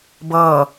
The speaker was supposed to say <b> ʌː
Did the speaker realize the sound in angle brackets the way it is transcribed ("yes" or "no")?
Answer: yes